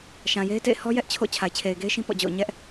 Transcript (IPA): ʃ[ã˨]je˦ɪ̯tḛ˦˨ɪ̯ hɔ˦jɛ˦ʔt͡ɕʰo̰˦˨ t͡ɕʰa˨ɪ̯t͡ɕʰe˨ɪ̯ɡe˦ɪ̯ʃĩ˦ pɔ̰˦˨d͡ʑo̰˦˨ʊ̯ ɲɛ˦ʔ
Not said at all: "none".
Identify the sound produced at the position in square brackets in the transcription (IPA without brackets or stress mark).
ã˨